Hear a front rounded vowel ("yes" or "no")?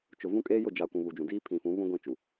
no